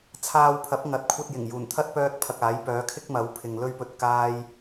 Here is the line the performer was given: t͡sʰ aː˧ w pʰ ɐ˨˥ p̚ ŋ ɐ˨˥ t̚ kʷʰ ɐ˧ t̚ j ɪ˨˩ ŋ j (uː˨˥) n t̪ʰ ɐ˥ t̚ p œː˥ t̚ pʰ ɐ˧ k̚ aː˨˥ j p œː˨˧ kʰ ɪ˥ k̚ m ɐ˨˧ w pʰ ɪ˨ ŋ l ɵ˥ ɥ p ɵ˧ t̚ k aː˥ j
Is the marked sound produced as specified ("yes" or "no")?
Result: no